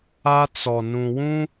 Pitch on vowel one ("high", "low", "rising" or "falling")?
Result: high